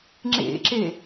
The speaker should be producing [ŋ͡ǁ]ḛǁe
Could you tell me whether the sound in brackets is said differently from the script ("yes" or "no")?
no